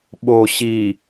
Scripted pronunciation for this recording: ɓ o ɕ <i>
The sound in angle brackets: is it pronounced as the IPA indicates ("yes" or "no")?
yes